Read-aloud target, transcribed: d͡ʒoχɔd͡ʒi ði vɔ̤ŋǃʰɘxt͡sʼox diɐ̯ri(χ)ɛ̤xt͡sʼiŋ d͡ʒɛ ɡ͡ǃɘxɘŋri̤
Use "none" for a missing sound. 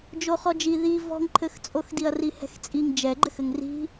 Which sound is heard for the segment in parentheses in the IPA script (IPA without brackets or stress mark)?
h